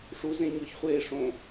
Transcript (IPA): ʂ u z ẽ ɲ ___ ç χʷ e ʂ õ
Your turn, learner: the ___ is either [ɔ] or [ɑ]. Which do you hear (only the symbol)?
ɔ